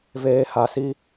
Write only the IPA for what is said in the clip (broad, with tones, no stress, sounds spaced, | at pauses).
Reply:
v eː˧ h a˧ s i˦